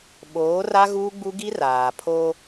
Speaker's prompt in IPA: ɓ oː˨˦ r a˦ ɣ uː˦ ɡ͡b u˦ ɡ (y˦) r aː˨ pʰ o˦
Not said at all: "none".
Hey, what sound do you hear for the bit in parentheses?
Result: i˦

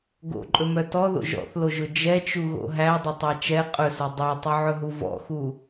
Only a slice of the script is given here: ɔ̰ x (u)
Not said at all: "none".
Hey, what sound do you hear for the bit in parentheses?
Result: u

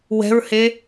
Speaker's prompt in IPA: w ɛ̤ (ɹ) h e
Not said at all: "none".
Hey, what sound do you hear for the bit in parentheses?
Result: ɹ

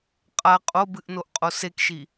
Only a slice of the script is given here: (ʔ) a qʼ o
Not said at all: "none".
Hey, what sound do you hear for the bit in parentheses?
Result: qʼ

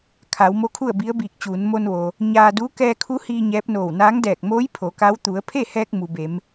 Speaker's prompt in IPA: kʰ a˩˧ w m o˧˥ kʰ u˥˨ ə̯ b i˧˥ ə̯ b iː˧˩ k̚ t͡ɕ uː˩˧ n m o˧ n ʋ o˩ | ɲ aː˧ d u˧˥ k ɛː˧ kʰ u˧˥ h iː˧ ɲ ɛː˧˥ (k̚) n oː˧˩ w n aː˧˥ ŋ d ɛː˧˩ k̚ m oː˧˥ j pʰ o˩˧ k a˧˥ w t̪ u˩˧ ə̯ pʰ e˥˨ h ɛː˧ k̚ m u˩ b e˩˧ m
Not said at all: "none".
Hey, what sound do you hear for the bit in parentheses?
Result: p̚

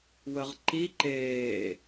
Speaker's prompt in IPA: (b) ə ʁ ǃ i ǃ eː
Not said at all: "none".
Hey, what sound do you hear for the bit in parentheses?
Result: w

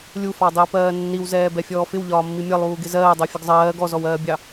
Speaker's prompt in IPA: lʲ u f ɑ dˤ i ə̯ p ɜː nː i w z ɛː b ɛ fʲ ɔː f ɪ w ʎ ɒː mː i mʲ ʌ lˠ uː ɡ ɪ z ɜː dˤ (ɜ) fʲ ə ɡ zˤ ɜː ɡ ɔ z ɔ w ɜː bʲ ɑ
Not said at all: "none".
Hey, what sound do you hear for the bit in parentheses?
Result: ɜ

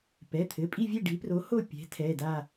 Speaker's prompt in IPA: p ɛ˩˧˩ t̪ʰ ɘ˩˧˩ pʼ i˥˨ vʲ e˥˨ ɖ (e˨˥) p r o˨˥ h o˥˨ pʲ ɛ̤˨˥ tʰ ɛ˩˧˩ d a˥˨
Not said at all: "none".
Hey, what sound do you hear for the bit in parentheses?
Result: i˨˥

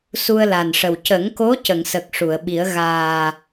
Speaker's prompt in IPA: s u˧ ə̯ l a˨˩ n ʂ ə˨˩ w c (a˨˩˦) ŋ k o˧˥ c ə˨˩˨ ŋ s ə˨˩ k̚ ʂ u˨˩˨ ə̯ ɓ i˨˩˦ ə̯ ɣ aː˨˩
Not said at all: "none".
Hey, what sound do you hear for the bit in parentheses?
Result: ə˨˩˦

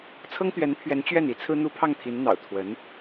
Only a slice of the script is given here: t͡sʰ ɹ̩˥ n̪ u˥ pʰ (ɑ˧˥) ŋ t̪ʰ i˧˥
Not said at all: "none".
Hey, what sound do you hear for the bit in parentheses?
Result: ɑ˥˩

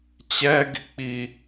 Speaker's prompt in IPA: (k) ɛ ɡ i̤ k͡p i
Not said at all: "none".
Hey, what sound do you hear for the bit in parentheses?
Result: t͡ɕ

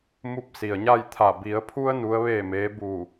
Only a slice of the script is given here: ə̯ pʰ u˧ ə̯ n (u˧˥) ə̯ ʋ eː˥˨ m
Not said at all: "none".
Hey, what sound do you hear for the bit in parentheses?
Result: u˧˥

